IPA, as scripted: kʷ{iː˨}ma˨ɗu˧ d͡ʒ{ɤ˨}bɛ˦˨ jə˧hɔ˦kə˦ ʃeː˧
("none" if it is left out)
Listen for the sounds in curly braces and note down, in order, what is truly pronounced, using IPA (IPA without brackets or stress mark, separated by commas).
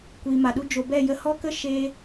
iː˨, o˨